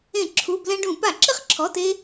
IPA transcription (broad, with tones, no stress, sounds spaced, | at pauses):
ẽ˧˩˧ ǁʰ u˩˧˩ b l ɛ̃˧ ɖ ũ˧˩˧ p a˧˩˧ ǁ ɪ˥˨ χ ǁʰ ɔ˩˧˩ t e˧